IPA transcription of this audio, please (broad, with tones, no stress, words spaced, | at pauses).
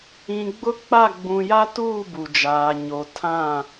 ĩ˨ɡ͡bʊ˦k͡pa˦˨ ɡ͡bũ˨ja˦tuː˦˨ bu˨d͡ʒaː˨ ɲo˨ tʰã˦˨